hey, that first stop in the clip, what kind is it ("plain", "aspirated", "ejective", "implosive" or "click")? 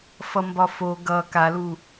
plain